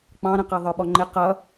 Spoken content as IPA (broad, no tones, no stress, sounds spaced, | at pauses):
k͡p ɑ̃ ɾ ə̃ q ɛ ðˤ ə˞ ɓ ɔ ŋ͡ǃ ɪ q ʌ